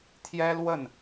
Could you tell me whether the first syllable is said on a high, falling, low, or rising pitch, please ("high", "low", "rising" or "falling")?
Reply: high